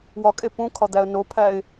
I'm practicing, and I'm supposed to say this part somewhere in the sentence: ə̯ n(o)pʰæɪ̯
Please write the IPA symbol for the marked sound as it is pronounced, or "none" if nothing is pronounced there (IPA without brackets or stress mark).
o